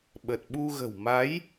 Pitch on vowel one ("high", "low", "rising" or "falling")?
low